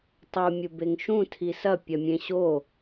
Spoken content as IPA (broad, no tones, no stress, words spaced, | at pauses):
tˤu mʲubeŋʃũ tʰisɐ pʲɐmʲẽɕo